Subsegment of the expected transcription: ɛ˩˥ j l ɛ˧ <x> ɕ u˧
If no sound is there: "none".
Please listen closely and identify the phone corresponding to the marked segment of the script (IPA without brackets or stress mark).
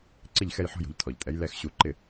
x